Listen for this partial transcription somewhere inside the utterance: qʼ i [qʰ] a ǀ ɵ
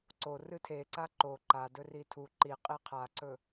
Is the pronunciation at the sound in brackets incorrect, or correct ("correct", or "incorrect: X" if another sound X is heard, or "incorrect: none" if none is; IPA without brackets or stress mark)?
correct